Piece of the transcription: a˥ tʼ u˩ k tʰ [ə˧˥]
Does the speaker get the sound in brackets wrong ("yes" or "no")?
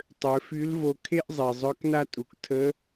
no